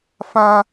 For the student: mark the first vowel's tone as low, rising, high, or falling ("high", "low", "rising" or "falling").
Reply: high